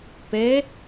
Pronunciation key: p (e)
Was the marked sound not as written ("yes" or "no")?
no